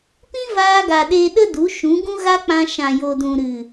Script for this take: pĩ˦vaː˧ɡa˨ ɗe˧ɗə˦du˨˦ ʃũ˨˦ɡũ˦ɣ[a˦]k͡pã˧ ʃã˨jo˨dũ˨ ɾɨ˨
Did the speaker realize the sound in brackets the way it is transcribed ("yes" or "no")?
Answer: yes